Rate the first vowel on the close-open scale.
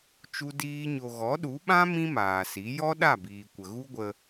close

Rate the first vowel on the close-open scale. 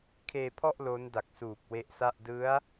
mid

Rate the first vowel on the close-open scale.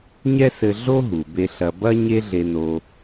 mid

